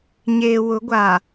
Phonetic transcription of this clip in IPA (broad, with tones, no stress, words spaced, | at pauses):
ɲeː˨wʊ˨˦ ɡʷa˨